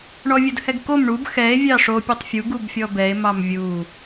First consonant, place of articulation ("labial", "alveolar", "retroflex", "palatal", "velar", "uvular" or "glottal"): retroflex